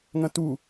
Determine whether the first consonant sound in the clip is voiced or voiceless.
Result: voiced